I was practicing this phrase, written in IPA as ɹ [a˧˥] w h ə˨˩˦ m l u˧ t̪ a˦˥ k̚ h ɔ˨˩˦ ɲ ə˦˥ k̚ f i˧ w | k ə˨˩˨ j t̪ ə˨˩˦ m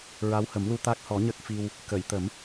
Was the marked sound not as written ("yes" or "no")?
no